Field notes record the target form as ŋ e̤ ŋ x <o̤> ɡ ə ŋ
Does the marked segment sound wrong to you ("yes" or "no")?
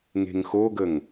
yes